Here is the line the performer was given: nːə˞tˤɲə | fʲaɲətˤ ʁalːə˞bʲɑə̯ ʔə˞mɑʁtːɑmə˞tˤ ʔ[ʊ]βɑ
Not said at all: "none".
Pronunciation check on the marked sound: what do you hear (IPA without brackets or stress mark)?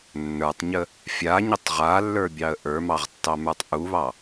u